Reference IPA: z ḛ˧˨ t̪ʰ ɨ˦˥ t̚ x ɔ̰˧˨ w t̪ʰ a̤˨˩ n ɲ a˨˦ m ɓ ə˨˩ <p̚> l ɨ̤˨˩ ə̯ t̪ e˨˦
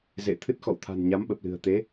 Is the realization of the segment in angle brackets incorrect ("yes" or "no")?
no